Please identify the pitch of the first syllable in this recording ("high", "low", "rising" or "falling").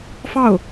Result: falling